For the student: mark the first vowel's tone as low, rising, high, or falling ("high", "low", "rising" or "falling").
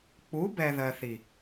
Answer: rising